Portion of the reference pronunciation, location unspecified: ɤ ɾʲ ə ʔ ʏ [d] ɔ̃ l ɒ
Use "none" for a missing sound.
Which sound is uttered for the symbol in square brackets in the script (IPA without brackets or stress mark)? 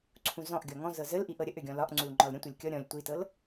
ɡʲ